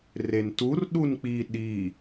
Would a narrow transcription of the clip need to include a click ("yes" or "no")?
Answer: no